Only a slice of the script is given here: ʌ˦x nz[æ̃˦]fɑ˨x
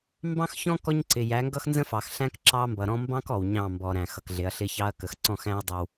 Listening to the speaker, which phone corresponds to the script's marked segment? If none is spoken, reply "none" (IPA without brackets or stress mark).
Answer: ə̃˦